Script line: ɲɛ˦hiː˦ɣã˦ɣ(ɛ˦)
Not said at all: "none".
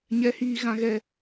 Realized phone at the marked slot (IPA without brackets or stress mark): ɛ˦